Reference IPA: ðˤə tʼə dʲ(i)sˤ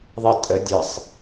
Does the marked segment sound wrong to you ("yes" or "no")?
yes